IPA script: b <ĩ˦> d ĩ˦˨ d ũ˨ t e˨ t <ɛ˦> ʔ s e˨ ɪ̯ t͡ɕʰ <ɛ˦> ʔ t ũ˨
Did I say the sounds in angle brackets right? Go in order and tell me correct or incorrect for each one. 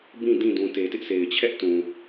incorrect: ĩ˦˨, incorrect: ɪ˦, correct

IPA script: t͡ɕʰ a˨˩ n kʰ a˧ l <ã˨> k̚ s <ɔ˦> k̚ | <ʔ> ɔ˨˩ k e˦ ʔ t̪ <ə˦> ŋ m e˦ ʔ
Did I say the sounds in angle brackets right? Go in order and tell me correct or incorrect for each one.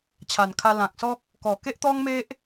correct, correct, incorrect: k, incorrect: ɔ˦

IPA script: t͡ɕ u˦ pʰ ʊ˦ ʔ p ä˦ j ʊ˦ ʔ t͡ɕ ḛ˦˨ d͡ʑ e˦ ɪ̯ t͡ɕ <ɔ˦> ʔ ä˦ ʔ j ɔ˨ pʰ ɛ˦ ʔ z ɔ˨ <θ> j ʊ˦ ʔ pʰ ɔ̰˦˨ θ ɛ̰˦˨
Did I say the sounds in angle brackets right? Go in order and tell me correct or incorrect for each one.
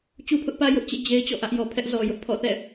incorrect: ɔ̰˦˨, incorrect: none

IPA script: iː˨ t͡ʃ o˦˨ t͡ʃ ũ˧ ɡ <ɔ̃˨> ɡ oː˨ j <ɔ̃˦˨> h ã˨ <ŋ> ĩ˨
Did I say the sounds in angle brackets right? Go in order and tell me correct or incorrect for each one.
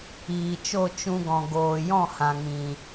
correct, correct, correct

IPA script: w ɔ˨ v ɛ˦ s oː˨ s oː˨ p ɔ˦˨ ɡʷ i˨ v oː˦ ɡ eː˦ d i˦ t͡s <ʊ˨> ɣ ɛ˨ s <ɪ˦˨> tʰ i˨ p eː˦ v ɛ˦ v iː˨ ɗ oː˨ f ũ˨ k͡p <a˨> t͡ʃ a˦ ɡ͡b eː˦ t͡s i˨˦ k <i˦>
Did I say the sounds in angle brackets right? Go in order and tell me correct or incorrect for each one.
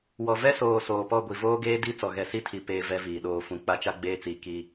incorrect: ɔ˨, incorrect: i˦˨, incorrect: a˦, correct

